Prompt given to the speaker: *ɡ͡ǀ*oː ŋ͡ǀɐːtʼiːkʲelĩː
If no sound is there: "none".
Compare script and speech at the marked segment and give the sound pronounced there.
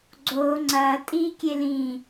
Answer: ɡ͡ǀ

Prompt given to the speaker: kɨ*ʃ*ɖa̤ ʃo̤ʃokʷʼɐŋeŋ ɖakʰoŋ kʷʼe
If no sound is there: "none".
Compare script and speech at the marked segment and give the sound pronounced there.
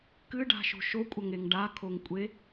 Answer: none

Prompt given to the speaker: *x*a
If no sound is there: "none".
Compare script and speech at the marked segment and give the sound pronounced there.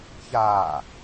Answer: ç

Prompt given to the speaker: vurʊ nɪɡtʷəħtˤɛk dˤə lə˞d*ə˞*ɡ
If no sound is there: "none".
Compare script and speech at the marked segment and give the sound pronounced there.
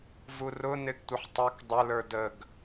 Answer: ə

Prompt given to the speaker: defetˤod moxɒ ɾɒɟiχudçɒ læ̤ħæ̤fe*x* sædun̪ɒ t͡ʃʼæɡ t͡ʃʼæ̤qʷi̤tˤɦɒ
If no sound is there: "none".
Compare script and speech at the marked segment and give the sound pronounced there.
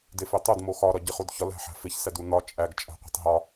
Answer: ç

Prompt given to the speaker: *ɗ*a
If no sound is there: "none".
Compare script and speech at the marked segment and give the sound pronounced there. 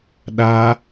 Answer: ɗ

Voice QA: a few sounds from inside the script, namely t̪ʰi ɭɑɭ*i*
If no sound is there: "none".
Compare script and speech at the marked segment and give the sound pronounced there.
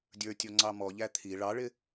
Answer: ɪ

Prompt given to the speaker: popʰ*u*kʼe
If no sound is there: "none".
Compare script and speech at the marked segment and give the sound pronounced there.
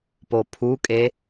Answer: u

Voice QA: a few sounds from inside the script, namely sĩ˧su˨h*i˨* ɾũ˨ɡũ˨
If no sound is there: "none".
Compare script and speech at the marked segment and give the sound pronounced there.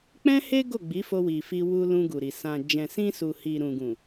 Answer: i˨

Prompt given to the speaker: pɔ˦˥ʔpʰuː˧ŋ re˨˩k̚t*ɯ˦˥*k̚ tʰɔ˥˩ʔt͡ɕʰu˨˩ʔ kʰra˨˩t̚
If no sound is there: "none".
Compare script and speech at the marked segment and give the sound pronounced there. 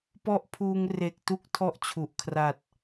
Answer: u˦˥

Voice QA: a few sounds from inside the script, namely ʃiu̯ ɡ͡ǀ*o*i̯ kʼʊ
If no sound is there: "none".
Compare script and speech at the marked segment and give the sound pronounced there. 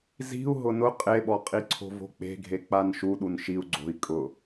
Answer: o̤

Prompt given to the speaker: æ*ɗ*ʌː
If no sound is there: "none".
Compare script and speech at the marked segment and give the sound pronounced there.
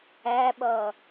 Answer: ɓ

